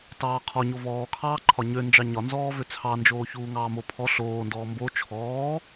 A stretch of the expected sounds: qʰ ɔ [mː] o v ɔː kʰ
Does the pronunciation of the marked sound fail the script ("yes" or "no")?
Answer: yes